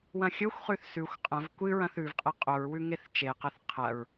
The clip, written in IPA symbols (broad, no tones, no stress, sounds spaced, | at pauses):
w ɐ̃ xʲ ɵ xʷ χ ʉ θ s ʉ xʷ qʼ ɐ̃ v kʷ ɨ ɹ ɐ̃ θ ʉ v qʼ e qʼ o ɹ w ʉ ŋ e θ t͡ʃ e q ɐ θ qʰ ɐ ɹ